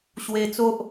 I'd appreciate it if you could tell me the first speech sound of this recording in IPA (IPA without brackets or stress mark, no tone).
ɕ